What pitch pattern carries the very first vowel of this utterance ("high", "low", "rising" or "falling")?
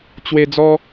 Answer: high